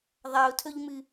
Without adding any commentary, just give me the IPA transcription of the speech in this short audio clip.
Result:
ðˤ a ʊ̯ tʰ ɵ ʎ m ɨ

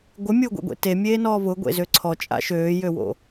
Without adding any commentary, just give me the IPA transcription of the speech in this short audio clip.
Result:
ɡʷ ɪ mʲ ʊː ɡʷ ḛ ɡʷ ḛ t e mʲ eː n ɔː β ʊ ɡʷ ḛ z ø ǀʰ ɔ t͡ʃʼ a̰ ʃ øː j ø w o̰

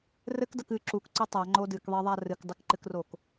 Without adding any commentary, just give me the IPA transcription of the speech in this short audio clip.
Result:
r ɘ k d ɐ k ɨ ǁ u k ǀ ɘ tˤ a ŋ͡ǃ o d ɨ k ðˤ i ðˤ a r ɨ k dˤ ɨ k ǃ ɨ k r o k

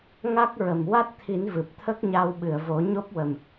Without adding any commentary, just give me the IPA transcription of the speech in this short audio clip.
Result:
ŋ a˦˥ k̚ ɹ ə˨˩ m w a˦˥ t̚ t̪ʰ i˨˩˦ n v ɨ˨˩ p̚ t̪ʰ ə˦˥ k̚ ɲ a˧ w ɓ ɨ˨˩˨ ə̯ v o˨˩˦ ɲ o˦˥ p̚ w ə˨˩ m

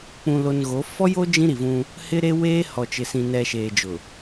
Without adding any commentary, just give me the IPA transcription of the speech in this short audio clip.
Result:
k͡p ũ˨ l o˨ n ɣ o˨˦ f ɔ˦ j o˦ d͡ʒ ĩ˦ ɾ i˨ v ũ˦ | h ɪ˦ ɾ e˦ w eː˦ h ɔ˨ t͡ʃ ɪ˨ s ĩ˨ n ɛ˨ ʃ eː˨ d͡ʒ ʊ˨

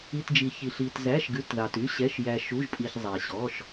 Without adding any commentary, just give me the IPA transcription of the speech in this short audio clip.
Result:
i˩˧˩ t d͡ʒ i˩ ç i˩ ɬ i˩ t z æ˩˧˩ ʃ ɡ ʉ˩˧˩ t ð ɑ˩ t y˩˧˩ ɕ ɛ˩˧˩ ʃ j æ˩ ʃ u˩˧˩ ʒ pʼ i˩ ç zˤ æ˩ ɕ ɔ˩˧˩ ʃ

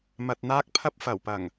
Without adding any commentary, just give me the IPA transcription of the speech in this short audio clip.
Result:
m ɐ˨ t̚ n̪ aː˧ k̚ pʰ ɐ˧ p̚ f ɐ˨˩ w p ɐ˨˩ ŋ

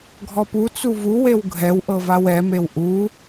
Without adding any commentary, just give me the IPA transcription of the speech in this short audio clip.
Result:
ɡʱ ɔ p u t͡s u v u w e w ɡʱ ɛ w ʔ ɤ v a w ɛ m e w ʔ u

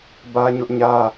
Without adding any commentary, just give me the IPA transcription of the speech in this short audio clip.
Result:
b ä˦ ɲ ʊ˦ ʔ ɲ ä˦

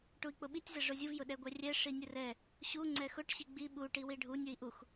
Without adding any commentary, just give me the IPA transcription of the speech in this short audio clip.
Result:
ʈ u i̯ k͡p ʊ ɓ i tʲ z ɛ ʐ ʊ zʲ u v j ʊ ɗ ɛ ɡʷ ɛ rʲ ɛ ʂ i nʲ ʊ r ɛ | ɕ u ŋ͡ǀ ɛ x ʊ ʈ ɕ i ɡ͡b i ɓ u ʈ i w i ɖʱ u nʲ ʊ i̯ ʔ u x

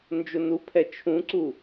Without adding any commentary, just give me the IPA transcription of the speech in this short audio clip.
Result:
n d͡ʒ o n u pʰ ɛ t͡ʃʰ ũ ǀ u

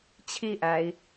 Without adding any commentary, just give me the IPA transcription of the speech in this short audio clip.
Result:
t͡ɕʰ i ʔ æ i̯

